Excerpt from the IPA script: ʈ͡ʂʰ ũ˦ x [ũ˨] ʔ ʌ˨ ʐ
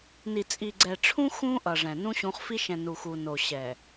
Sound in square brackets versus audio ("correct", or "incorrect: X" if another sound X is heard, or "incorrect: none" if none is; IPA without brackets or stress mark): incorrect: ũ˦